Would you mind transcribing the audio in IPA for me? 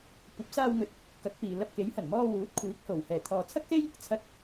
kʷɐ˨˥p̚saː˧wŋɵ˨t̚ | kɐ˨˥k̚piː˨ lɐ˧p̚ke˨˥jhɐ˨˩n mɔː˧wuː˨˥t̚ kʷʰiː˨˥k̚ho˨˩w hɛː˨˩t̪ʰɔː˨t͡sʰɐ˥k̚se˥j | t͡sʰɐ˧t̚

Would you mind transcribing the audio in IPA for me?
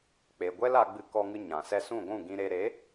k͡pe˨ɡʷɛ˦l a˧ɡ͡bɨ˧ kɔ˧ŋɨ˧ ɲã˨sɛ˧sũ˦˨ ɡʷũ˦˨ ɡĩ˧ɾe˧ ɾe˨˦

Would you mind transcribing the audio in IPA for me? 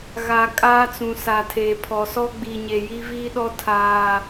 ɣa˨ kʼaː˦t͡sũ˨sa˨tʰeː˨ pʰɔ˨sɔ˦ ɡ͡bi˨ɲe˨ ji˦viː˦ɗɔ˦ tʰaː˦

